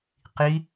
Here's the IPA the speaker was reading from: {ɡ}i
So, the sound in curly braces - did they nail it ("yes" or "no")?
no